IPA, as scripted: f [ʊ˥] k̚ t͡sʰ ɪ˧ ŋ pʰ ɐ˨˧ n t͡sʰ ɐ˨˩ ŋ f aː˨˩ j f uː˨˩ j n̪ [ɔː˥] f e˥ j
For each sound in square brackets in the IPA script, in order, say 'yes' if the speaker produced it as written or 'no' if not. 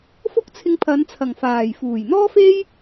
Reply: yes, yes

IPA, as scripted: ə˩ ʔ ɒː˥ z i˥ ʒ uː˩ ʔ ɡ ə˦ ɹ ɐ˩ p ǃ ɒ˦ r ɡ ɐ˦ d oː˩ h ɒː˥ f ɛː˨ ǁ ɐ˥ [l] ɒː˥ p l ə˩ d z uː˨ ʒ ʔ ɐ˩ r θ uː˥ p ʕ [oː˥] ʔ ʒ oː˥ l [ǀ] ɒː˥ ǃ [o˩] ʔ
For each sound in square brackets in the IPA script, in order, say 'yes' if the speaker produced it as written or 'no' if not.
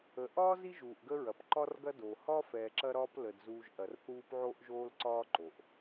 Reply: no, yes, yes, yes

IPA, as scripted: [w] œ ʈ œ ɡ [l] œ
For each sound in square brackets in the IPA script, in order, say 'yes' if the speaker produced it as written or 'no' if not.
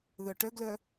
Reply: no, yes

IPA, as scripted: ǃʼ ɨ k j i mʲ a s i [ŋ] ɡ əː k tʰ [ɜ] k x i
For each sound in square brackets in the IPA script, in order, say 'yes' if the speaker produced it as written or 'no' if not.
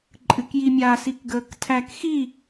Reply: no, no

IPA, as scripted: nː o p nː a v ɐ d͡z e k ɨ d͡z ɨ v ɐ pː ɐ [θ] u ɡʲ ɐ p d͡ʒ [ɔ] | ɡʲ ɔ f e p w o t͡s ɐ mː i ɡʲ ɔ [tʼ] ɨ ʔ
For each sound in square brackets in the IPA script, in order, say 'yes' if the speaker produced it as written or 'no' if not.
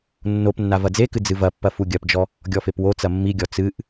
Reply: no, yes, no

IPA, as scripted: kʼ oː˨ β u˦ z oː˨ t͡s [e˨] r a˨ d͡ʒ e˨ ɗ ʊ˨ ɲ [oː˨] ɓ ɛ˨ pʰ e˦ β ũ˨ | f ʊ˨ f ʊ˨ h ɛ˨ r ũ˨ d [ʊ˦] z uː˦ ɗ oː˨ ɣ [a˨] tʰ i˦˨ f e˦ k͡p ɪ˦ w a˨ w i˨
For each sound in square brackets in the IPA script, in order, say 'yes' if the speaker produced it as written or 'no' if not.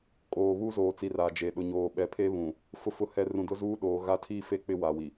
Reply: no, yes, yes, no

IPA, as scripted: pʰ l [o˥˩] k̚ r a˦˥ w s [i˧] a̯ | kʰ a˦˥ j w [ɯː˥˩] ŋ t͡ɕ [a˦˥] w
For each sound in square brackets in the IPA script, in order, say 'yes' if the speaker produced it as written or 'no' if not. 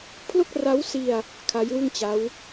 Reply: yes, yes, no, yes

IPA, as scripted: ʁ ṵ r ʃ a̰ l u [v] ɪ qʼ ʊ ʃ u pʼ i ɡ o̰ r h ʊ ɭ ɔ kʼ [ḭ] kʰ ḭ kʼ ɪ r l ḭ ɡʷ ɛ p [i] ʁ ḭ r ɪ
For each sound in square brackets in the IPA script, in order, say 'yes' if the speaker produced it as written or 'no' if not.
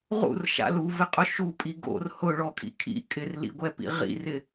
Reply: yes, yes, no

